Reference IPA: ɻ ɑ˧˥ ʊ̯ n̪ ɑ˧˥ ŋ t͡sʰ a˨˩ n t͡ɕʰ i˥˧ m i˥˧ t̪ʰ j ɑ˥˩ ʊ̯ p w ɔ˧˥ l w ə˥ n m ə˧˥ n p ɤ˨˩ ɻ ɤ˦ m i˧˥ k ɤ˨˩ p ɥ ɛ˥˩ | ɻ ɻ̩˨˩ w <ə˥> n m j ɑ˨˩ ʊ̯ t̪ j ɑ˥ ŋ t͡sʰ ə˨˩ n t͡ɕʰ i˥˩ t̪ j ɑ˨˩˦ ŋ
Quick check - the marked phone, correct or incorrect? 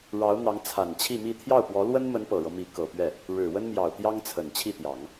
correct